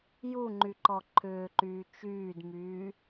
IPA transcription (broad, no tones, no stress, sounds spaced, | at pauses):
j u ŋ͡ǃ y ǃ ɔ ǃʰ ʏː ǃ yː t͡ʃ yː d m yː